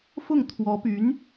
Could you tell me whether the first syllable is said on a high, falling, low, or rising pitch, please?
falling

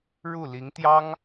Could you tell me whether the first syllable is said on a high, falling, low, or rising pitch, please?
falling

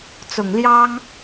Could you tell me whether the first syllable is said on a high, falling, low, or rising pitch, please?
low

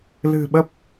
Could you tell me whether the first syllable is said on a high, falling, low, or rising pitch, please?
low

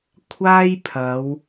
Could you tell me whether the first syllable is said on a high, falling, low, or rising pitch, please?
high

